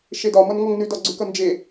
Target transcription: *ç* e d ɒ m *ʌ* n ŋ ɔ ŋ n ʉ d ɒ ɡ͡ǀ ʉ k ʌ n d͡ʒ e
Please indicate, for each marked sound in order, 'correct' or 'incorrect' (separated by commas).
incorrect, correct